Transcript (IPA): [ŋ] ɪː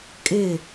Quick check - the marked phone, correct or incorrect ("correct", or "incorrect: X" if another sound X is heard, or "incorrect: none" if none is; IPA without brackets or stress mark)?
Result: incorrect: kʼ